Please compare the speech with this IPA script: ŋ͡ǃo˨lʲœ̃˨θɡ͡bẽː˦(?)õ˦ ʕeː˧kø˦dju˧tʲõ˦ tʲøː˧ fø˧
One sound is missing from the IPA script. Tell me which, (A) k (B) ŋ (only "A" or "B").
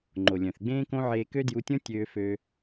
A